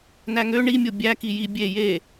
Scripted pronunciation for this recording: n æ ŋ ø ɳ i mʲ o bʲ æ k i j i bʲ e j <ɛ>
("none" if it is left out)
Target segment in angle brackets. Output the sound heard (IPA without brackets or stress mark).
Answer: e